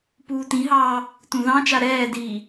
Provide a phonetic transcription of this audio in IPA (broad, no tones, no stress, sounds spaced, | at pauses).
p uː t ĩ ɦ ɑː | t ũ ð ɑ̃ t͡ʃ a ɾ ɛː d iː